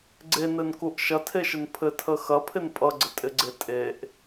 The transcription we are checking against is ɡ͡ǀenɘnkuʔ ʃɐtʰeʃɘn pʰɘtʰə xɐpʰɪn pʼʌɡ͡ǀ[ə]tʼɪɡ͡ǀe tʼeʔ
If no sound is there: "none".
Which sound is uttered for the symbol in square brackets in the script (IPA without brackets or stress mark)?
ə